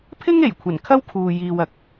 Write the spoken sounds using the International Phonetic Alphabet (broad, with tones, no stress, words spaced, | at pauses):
pʰɪ˥ŋe˨˩j kʷʰɐ˨˩nkʰɐ˥w kʰuː˨jiː˨wɐ˨˥k̚